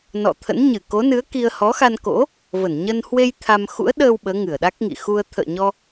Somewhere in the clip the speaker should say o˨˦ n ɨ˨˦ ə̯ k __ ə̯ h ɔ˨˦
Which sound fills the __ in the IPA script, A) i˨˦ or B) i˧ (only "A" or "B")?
B